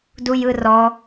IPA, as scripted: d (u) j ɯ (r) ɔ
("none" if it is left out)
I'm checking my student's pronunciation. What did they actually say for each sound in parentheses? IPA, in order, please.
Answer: u, r

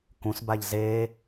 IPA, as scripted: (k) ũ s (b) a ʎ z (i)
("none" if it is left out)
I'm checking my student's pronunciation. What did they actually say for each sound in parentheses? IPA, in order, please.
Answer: k, b, e

